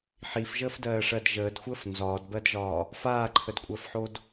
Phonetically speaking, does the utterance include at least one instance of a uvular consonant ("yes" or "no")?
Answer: no